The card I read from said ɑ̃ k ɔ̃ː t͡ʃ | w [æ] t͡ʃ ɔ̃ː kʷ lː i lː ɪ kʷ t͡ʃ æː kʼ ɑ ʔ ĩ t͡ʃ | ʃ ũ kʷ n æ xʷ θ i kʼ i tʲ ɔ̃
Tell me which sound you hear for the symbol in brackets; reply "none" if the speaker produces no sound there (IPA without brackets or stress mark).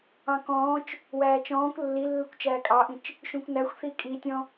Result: æː